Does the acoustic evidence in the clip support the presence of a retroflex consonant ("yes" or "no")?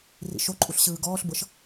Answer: no